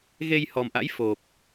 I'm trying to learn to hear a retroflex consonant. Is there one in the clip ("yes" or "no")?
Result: no